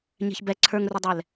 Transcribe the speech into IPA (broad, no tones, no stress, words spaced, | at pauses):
ɲɛ̤çbɛ ǀʰə˞ŋrudˤɛl